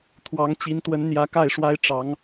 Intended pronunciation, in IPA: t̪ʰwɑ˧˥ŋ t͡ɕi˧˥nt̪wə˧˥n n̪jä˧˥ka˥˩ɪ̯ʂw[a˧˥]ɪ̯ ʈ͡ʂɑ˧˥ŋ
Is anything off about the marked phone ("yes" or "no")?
yes